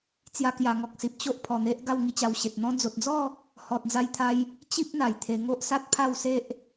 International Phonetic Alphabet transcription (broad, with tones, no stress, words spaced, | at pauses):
t͡sja˧kja˨˩ŋɔ˨k̚si˨p̚ t͡ɕo˦ʔ pʰɔ˨˩n̪e˦ʔ ɡa˥˧wŋi˧ t͡ɕa˧wɕe˨t̚ n̪ɔ̃˧d͡zo˨t̚d͡zɔ˥˧ | hɔ˨t̚d͡za˧jt̪ʰa˧j | t͡ɕi˦p̚ n̪a˨˩jt̪ʰe˧ ŋo˦ʔsa˦t̚pʰa˥˧wse˦ʔ